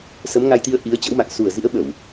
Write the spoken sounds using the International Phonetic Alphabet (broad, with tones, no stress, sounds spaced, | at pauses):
s ə˨˦ m ŋ a˧ j t̪ i˧ ə̯ ʔ i˨˦ ə̯ t͡ɕ ə̰˧˥ w m a̰˧˨ ŋ s u˨˩ ə̯ z ḭ˧˥ ə̯ ɓ ə˧˩˨ w